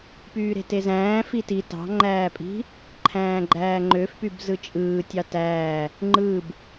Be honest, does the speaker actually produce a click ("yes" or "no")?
yes